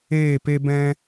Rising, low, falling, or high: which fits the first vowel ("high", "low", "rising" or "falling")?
falling